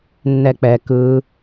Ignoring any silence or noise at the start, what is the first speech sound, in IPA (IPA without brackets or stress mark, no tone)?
nː